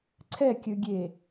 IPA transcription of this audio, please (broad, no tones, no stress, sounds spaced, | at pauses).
ǀʰ ɛ kʲ ɵ ɡʲ e